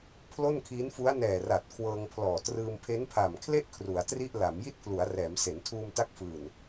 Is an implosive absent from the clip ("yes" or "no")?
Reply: yes